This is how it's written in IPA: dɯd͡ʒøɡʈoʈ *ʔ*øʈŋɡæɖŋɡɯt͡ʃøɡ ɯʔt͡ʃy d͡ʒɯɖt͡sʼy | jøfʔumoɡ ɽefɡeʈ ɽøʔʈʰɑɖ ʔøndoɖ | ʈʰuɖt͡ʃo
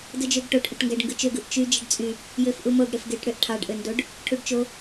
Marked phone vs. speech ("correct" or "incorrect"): correct